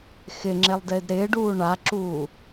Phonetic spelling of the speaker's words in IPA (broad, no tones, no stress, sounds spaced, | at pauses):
x ɪ ŋ͡ǁ e lˠ d ɪː d ɾ ɪː ɖ uː ɳ a ǁ uː